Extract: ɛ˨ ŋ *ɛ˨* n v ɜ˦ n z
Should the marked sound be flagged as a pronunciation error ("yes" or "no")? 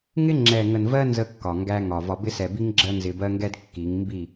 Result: yes